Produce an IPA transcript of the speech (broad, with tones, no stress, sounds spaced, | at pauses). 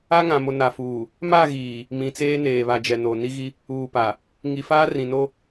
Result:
a˦ ŋ ã˨ m o˨ n a˨ f uː˨ | m a˦˨ ɣ iː˨ | m ĩ˨ t͡s eː˦ n eː˨ β a˨ d͡ʒ ɛ˨ n o˨ n i˦ ɣ i˦ | uː˨ p a˨ | ŋ i˨ f aː˦ r ĩ˨ n o˦